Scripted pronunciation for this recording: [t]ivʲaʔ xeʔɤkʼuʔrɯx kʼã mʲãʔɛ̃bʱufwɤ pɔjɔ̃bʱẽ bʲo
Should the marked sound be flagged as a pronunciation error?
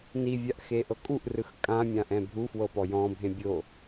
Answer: yes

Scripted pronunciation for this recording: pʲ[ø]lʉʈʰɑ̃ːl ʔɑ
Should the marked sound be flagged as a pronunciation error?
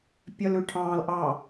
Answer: yes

